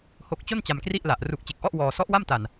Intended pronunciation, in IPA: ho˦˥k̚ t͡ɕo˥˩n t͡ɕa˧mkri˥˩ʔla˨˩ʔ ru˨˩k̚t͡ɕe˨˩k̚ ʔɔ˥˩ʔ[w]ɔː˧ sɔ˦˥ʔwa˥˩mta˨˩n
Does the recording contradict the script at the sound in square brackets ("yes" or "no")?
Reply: no